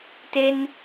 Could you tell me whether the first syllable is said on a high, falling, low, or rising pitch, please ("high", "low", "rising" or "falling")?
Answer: high